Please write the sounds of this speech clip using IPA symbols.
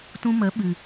t ũ˧ m ə˨˦ ɓ ɨ˨

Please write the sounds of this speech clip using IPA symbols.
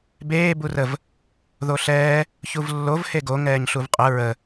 b eː b u r ə v | ð o ɬ ɛː | ç u v lː o v h e ɡ o ŋ ɛː ɲ ɬ u v qʼ ə ɹ ə

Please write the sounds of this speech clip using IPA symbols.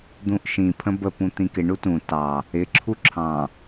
d̪ ũ ʔ ʃ ĩ pʰ ə̃ b ə p ũ t̪ ĩ k ɪ ɳ u t ũ t ɑ | ɪ ǁʰ u ǁʰ ɑ̃

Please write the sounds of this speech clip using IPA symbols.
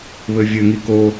β ɘ vʲ ɘ ŋ i k o

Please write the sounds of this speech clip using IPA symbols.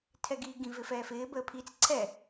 tʰ ɛ ɡ iː ɡ ĩ v ɪ f ɛː f ɪː b əː pʰ i t͡s ǀʰ ɛ

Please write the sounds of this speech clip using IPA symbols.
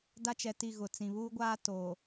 d a˦ t͡ʃ ɛ˨ t i˦˨ ɣ ʊ˨ t͡s ĩ˨ β uː˦ ɡʷ aː˦ t o˨

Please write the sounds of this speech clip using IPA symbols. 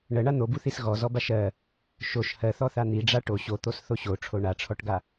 ɳ ɜ ɳ a n̪ o b u θ i s ɣ ɔ z ɔ b a ʃ ɜ | ʃ o ʃ h ɜ θ ɔ θ a n̪ i ɖ͡ʐ a ʈ o ɕ o t̪ o s θ o ɕ o ʈ͡ʂʰ o ɳ a ʈ͡ʂʰ ɔ ʈ ɡ a

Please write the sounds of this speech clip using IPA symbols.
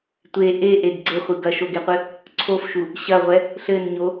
tʷ e ʔ e ʔ e ɡ ɡ͡ǀ ɘ χʷ ɨ ɡ ɐ ʃ o ɡ e qʷ ɨ | ǀʰ o f ʃ u | ɕ ɐ ʁʷ ɛ | ɬ ɘ n ɲ o

